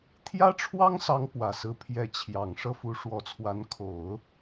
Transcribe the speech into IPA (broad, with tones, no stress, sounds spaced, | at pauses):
t̪ʰ j ä˥ ʈ͡ʂʰ w ɑ˥ ŋ s ɑ˧˥ ŋ p w ä˨˩ s ɹ̩˧˥ pʰ j ɛ˧˥ t͡ɕʰ j ɑ˨˩ ŋ ʂ ɤ˥˩ f u˧˥ ʂ w ɔ˧˥ t͡sʰ w a˧˥ n kʰ o˨˩˦ ʊ̯